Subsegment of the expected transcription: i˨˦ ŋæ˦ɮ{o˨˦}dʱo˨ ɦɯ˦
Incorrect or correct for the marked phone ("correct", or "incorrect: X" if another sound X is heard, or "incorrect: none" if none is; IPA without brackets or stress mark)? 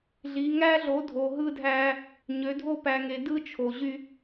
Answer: correct